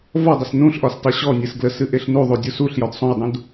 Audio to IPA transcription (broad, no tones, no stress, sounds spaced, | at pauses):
v ɒ dˤ ə s n ũ ɬ ʔ ɒ s tˤ ɨ ɕ ɔ nʲ ɨ s ɡ l ə s ɨ ʔ e ɬ n u ðˤ u dʲ u s u ɬ j ɒ d sˤ ũ j dˤ ũ d